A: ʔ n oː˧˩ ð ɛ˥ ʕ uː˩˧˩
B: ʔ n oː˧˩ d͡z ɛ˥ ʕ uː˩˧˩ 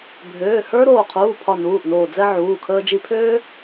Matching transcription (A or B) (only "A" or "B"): B